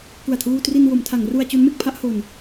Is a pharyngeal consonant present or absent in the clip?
absent